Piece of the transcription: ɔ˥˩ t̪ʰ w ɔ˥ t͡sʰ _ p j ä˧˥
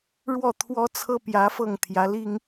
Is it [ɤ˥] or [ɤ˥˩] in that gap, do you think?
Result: ɤ˥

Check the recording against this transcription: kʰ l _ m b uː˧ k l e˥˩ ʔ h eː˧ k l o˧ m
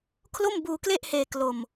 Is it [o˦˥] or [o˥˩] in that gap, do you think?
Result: o˥˩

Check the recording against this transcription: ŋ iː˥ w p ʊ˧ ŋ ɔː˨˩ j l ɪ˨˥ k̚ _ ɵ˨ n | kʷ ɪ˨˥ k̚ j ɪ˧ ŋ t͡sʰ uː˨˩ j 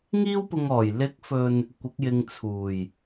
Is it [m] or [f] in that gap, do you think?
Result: f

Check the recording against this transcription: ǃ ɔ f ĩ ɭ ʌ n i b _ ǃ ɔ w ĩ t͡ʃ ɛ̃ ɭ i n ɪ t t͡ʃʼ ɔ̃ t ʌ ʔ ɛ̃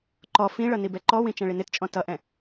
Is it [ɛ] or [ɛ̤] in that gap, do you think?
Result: ɛ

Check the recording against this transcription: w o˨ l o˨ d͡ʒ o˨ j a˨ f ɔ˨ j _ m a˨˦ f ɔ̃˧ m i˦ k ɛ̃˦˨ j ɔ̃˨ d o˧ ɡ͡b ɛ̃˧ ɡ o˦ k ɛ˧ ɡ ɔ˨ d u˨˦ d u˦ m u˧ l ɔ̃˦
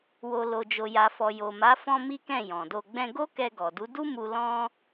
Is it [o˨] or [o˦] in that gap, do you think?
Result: o˨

